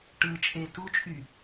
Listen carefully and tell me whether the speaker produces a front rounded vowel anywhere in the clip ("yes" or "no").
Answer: yes